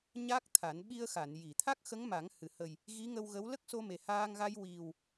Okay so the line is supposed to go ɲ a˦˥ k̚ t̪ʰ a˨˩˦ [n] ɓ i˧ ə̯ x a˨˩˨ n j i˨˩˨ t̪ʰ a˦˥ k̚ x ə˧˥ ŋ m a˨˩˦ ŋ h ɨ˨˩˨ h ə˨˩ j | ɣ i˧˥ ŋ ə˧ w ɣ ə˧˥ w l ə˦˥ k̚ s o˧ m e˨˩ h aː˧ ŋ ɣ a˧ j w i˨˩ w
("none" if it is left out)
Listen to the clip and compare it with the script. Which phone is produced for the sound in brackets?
n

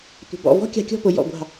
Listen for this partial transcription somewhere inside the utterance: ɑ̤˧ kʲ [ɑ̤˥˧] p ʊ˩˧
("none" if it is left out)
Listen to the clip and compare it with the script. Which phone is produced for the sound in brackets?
ɔ̤˥˧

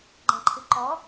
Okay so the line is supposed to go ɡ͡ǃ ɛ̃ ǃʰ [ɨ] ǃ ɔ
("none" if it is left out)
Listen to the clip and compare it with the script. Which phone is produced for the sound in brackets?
ɨ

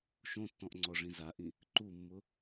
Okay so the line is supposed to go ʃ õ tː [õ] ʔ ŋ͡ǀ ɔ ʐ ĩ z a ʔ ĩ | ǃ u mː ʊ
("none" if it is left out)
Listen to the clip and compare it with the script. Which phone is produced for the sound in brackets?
ɔ̃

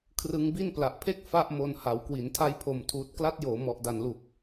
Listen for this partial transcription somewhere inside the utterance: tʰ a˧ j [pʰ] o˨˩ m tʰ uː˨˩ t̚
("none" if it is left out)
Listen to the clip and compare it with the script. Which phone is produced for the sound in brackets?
pʰ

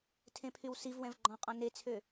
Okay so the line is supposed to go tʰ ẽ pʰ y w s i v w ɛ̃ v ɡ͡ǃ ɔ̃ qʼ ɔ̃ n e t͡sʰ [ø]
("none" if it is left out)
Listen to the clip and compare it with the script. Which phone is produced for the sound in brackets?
ø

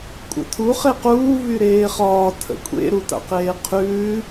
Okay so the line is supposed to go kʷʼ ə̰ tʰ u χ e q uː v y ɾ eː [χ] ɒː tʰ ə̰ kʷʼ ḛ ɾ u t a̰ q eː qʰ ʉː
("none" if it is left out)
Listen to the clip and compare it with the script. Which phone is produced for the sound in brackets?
χ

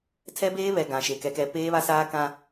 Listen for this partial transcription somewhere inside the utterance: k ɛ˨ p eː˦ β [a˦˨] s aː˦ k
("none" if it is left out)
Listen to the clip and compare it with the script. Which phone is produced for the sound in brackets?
a˦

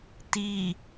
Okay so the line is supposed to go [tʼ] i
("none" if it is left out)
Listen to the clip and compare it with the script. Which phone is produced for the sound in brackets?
t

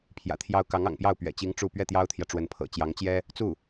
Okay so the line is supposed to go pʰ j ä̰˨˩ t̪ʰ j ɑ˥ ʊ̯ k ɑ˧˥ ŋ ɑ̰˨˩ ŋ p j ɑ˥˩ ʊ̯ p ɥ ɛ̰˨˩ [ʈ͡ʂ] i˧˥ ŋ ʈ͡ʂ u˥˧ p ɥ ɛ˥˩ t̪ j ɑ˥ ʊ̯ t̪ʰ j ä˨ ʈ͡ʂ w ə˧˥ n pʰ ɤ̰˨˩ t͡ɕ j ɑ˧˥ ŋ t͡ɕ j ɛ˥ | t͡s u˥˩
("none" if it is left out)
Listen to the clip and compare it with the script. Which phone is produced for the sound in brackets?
t͡ɕ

